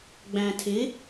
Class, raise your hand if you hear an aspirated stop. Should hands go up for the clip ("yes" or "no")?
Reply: yes